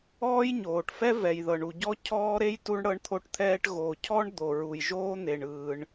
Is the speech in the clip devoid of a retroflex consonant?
no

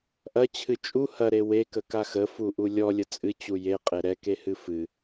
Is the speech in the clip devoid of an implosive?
yes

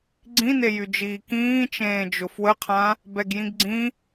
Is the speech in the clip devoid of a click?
no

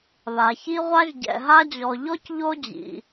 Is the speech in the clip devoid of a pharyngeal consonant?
yes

